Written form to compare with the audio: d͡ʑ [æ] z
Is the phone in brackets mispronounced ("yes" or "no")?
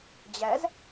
no